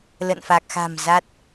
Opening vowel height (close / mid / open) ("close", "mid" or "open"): mid